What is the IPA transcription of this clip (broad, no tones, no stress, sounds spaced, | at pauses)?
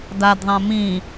d a d ðˤ ã m ĩ